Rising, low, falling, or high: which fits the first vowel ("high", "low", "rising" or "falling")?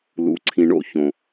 rising